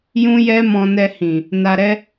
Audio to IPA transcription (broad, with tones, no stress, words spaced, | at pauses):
jũ˦jɛ˦mɔ̃˧nɛ˧ hĩ˨ | na˧ɾɛ˦